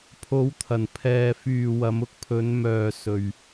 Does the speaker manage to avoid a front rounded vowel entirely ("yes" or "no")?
no